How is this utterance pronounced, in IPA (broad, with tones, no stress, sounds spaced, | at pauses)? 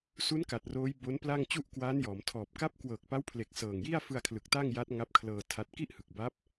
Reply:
s u˦˥ n k a˨˩ t̚ r oː˦˥ j b o˦˥ n p l a˥˩ ŋ t͡ɕ u˥˩ ʔ k w aː˦˥ n j ɔː˩˦ m tʰ ɔː˨˩ p̚ k a˦˥ p̚ k w ɤː˨˩ k̚ p a˦˥ w pʰ l e˨˩ k̚ s ɤː˨˩ ŋ j i˥˩ a̯ f ɯ˧ a̯ kʰ l ɯ˨˩ k̚ t a˥˩ ŋ j a˦˥ t̚ ŋ a˦˥ p̚ kʰ l ɤː˧ tʰ a˦˥ t̚ k i˥˩ ʔ h ɯ˨˩ k̚ b a˦˥ p̚